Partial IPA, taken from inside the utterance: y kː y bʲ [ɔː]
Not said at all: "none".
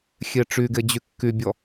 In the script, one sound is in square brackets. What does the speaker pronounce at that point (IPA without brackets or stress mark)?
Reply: ɔ